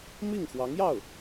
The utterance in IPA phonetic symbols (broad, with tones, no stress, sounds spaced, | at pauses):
m i˥˩ ŋ x w ɑ˧˥ ŋ j ɑ˥˩ ʊ̯